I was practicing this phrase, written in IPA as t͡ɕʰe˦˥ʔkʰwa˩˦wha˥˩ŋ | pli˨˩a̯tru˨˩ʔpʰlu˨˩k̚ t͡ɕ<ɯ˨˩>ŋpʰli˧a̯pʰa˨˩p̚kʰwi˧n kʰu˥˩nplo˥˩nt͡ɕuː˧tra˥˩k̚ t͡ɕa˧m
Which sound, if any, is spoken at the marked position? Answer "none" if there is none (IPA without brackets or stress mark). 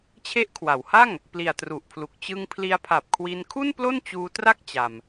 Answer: ɯ˧